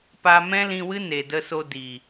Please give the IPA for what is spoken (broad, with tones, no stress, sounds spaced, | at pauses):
p a˧ m ɛ̃˦ l ĩ˧ w ɨ˦ n e˨ d ə˧ s o˧ d i˨